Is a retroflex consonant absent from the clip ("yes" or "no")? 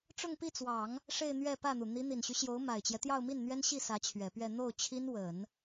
no